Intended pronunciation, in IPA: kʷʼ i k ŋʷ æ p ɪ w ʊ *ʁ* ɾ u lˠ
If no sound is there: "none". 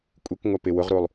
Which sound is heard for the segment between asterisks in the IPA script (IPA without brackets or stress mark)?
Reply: ʁ